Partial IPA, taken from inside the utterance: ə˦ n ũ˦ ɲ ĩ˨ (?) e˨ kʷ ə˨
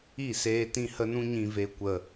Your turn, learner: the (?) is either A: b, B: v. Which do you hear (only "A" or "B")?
B